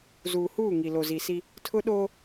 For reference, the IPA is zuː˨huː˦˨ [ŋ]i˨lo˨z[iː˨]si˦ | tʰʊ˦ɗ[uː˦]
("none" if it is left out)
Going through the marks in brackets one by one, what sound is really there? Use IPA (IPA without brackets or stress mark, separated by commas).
ŋ, i˨, oː˦